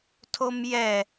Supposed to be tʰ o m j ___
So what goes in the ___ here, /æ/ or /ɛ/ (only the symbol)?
ɛ